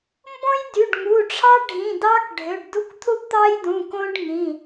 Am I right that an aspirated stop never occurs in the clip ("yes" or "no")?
no